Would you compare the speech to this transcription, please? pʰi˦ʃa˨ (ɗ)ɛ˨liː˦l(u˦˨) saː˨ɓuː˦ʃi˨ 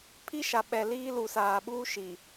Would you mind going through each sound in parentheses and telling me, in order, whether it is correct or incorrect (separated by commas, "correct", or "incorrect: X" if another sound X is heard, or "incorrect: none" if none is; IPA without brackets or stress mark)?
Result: incorrect: ɓ, incorrect: u˨